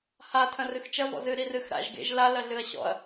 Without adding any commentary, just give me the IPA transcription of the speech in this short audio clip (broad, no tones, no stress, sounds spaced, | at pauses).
h a tʰ ɐ̃ r ɨ x t͡ʃ ɐ v ɔ̰ z ɨ ɾ i r ɨ x ɾ a̰ ʒ ɡ ḛ ʒ l a l ɐ ɮ ɨ ɐ̯ ɕ ɔ̰ ɐ̯